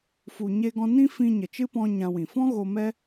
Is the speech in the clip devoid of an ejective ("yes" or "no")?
yes